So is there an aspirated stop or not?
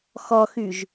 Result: no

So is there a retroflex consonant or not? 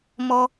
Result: no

